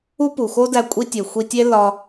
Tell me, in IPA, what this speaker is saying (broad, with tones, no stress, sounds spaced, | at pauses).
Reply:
u˥ p u˩ x o˥ d æ˧ kʷʼ i˧ tʲ e˩ xʷ i˧ tʲ e˥ l ɒ˧